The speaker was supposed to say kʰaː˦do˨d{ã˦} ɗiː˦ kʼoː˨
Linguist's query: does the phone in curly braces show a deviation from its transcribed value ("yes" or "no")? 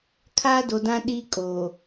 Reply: no